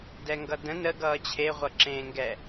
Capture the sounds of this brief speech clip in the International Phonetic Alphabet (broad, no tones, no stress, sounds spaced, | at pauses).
d ɛ ŋ ɡ ʌ d ə̃ n ə ɡ ʌː t͡ɕʰ e ʁʷ ʌ ǁ ẽː ŋ ɡ ɛ